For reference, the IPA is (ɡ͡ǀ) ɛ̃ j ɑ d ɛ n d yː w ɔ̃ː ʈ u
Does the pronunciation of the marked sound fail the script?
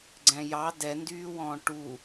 no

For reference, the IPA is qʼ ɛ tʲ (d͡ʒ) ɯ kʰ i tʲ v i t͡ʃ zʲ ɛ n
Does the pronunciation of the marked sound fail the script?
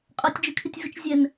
no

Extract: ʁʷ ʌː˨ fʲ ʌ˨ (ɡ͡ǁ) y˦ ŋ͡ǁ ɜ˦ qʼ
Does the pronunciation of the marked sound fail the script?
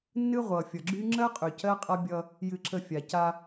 no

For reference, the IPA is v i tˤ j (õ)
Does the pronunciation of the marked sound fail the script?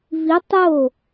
yes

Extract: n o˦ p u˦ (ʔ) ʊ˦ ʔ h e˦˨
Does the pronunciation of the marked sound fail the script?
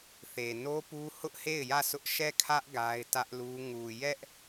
yes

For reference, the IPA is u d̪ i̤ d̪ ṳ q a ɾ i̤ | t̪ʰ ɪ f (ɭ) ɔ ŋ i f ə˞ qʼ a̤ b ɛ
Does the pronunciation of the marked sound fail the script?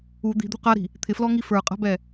yes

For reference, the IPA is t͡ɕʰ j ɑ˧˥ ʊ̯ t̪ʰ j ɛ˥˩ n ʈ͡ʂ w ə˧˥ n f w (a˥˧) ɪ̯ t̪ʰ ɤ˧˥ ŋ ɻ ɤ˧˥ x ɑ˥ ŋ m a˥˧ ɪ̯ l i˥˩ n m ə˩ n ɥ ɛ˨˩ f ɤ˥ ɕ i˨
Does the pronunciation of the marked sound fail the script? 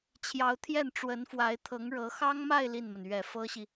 yes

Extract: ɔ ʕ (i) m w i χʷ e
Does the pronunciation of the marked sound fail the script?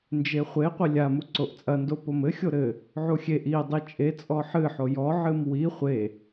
yes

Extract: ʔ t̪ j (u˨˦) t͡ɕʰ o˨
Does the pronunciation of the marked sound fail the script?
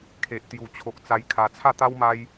yes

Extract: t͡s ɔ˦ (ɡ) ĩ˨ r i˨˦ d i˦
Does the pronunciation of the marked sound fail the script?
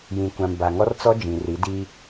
yes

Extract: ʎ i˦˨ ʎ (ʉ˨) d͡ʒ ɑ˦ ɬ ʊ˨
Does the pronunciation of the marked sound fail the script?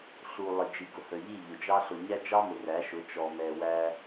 yes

